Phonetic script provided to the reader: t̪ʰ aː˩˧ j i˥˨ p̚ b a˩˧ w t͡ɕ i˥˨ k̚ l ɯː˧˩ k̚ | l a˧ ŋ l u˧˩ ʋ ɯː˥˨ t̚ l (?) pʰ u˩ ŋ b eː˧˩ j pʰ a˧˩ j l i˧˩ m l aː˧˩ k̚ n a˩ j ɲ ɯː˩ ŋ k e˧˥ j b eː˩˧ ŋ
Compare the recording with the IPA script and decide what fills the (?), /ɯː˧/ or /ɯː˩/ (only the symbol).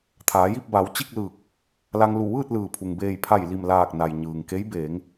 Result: ɯː˩